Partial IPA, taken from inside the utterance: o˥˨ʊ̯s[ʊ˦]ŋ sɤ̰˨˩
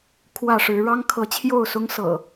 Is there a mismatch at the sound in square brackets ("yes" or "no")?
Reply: no